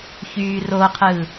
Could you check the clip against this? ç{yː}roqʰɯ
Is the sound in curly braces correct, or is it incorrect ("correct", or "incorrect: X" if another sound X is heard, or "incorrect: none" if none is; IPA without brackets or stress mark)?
correct